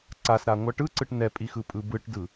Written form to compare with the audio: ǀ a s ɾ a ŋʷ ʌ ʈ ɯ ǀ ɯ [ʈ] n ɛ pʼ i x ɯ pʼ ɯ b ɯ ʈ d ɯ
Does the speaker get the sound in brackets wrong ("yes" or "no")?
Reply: no